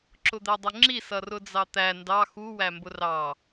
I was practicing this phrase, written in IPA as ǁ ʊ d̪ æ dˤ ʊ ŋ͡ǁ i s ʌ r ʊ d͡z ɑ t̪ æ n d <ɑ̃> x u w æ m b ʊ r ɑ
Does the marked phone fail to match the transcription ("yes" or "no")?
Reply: yes